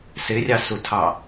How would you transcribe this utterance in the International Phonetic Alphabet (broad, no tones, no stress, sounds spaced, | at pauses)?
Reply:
s ɪ rʲ ɑ s u tʰ ɑ